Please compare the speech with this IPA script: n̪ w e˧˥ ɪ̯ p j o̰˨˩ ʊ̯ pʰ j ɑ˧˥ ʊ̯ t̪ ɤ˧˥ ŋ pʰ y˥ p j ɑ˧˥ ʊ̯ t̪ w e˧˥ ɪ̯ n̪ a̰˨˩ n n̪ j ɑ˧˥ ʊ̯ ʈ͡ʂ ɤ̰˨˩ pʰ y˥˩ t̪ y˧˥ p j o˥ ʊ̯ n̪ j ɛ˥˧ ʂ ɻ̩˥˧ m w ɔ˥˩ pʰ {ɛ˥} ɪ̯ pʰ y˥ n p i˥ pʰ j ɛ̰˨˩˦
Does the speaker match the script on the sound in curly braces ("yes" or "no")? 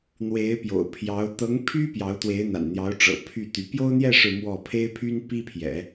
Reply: no